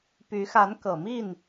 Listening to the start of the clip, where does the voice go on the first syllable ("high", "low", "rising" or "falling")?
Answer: rising